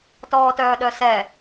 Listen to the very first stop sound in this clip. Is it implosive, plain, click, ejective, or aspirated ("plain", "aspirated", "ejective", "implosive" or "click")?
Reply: plain